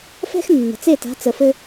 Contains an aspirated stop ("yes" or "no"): no